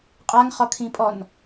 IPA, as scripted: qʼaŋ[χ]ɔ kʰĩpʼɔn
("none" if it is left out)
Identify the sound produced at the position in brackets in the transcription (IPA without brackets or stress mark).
χ